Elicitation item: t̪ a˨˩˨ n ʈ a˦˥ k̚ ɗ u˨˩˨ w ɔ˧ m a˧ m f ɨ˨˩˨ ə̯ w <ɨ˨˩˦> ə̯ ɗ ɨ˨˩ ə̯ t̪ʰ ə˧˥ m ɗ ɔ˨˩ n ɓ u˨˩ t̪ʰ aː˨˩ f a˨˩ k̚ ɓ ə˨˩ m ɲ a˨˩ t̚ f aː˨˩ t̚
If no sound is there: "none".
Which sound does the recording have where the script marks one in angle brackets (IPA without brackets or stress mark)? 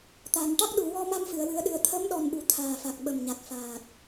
ɨ˨˩˦